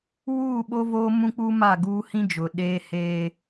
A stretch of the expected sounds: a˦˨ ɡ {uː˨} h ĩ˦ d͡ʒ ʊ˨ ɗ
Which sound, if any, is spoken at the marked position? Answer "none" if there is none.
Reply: uː˦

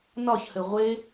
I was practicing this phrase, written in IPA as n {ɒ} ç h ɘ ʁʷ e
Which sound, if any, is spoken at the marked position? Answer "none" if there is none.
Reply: ɒ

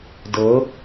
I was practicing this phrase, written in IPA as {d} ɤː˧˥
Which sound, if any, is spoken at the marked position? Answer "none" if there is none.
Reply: d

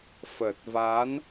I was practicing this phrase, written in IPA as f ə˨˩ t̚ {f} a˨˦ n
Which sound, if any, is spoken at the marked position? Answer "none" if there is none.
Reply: v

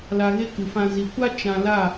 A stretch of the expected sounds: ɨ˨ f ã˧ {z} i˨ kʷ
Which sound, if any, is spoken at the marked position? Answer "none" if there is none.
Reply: z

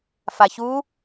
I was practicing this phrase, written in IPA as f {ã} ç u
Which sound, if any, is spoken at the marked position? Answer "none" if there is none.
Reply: a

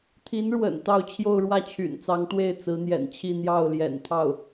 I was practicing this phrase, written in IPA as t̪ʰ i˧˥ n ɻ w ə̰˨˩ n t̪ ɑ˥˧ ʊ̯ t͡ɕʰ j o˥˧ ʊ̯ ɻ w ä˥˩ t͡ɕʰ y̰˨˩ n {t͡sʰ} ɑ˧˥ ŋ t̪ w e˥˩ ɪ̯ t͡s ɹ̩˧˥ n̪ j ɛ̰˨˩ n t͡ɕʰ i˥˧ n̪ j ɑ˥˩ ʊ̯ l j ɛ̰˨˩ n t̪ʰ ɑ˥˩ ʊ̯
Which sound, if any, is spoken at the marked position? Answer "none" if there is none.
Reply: t͡s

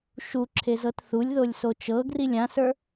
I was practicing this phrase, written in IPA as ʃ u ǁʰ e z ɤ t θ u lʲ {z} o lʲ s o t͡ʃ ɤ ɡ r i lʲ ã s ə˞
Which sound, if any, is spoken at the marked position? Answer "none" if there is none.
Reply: ð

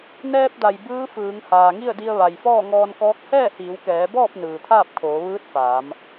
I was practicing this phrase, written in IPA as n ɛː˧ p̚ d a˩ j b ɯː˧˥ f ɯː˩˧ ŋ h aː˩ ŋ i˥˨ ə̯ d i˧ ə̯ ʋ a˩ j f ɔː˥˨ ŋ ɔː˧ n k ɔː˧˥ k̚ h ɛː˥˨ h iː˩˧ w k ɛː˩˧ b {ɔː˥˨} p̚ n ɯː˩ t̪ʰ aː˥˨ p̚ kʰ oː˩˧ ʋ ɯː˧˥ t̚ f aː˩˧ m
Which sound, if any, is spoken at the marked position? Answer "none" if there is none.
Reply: ɔː˥˨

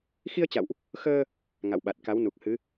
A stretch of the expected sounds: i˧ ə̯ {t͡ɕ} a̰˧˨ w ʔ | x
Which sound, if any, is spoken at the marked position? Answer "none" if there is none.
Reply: t͡ɕ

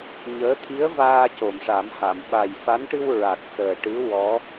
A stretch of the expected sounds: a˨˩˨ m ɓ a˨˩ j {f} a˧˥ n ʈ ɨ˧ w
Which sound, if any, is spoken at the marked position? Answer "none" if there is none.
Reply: f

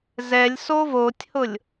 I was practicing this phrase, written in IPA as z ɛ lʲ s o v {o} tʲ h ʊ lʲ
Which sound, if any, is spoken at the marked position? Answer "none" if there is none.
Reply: o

